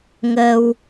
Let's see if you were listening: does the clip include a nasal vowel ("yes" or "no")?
no